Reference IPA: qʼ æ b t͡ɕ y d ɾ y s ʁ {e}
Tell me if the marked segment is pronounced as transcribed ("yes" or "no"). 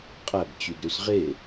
yes